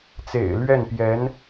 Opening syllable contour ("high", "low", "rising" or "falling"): low